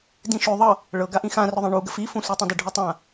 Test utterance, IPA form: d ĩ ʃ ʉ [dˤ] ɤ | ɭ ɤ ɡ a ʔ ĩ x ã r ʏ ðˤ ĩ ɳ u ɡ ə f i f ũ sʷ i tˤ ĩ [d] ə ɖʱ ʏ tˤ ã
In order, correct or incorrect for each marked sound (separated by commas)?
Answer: incorrect, correct